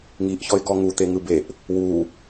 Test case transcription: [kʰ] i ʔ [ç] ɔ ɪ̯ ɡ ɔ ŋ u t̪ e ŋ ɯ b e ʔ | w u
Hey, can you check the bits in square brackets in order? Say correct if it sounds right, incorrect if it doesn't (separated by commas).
incorrect, correct